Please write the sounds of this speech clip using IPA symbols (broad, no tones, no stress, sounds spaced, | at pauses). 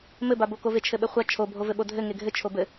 m ɘ b a b o k o v e t͡ʃʰ ɘ ɓ ɘ χʷ a t͡ʃʰ o bʱ o v ɘ ɓ o dʱ ɘ ŋ e ɡʱ ɘ t͡ʃʰ o b ɘ